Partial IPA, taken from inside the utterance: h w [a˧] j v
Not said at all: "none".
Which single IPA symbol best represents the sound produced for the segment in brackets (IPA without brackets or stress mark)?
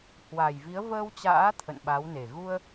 a˨˩